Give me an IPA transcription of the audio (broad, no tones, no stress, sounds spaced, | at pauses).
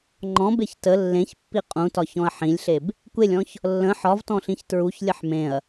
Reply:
ŋ͡ǃ ɔ̃ b e ç t ə lː ẽ ç pː i qʼ ũ t ɒ ç ɔ̃ ɐ̯ ħ ĩ lʲ ɬ e b | kʷ e lʲ ɔ̃ ç | lː ə̃ ħ ɒ v t ɔ̃ ɬ ĩ ç t ɹ u ç lʲ ə ħ m ẽ ɐ̯